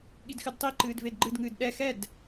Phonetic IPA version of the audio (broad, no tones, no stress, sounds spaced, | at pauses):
ɠ i d x ɨ d tˤ i ǃ ɨː d v e d ɡ͡ǃ ɨ d ŋ ɨː d ɗ ɛ x ɛ d